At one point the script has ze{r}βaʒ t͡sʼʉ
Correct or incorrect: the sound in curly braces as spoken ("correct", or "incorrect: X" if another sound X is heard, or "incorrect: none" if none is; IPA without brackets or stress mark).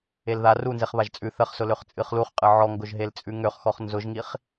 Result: incorrect: χ